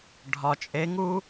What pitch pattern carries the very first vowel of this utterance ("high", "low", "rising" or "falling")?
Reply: low